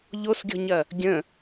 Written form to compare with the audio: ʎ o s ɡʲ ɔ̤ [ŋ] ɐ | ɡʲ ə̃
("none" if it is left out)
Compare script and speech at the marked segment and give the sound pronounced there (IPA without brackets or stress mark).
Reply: ɲ